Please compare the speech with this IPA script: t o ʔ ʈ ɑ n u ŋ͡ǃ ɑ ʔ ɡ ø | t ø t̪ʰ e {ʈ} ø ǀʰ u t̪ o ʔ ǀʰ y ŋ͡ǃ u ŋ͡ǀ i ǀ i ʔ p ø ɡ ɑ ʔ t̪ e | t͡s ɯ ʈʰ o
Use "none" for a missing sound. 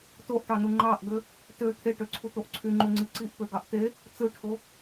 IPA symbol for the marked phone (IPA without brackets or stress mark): ʈ